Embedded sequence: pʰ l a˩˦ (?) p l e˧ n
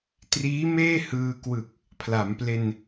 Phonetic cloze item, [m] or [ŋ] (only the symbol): m